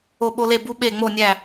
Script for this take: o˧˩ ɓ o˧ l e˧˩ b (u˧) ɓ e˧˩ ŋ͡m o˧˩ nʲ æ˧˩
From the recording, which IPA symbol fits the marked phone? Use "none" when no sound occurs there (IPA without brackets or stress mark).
u˧